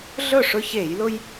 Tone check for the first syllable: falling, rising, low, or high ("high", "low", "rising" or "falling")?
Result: falling